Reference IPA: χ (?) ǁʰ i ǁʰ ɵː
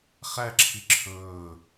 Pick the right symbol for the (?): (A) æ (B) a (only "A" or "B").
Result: A